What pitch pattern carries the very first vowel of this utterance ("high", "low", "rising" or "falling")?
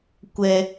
high